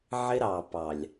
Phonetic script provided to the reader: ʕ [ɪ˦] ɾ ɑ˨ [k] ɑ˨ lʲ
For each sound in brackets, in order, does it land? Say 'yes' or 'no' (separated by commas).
yes, no